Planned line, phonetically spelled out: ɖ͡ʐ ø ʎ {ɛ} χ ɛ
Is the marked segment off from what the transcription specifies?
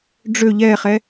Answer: no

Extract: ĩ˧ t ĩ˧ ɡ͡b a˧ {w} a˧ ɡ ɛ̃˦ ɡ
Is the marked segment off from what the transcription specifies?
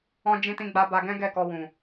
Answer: yes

